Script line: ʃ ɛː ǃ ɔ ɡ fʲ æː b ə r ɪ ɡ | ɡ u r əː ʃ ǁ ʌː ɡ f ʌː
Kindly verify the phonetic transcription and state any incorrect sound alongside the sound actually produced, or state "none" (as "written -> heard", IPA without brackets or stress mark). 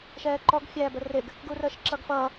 none